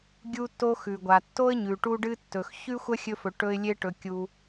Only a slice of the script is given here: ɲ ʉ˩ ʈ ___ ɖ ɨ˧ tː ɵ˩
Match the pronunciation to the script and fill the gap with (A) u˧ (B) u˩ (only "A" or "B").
A